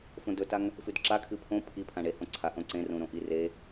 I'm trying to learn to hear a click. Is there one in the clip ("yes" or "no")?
yes